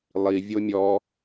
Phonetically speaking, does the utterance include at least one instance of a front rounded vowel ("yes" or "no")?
no